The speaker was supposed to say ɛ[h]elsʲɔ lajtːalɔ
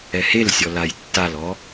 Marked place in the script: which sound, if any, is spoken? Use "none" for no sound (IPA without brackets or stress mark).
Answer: h